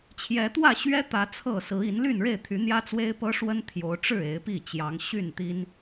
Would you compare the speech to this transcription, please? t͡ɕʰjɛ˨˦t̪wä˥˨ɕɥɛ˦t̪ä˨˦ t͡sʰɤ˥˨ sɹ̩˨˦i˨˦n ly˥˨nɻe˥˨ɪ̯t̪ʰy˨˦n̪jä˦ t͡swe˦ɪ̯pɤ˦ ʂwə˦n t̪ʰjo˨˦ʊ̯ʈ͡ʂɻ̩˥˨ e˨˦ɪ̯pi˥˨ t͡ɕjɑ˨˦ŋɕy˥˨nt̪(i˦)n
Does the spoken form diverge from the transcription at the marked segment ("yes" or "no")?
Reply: no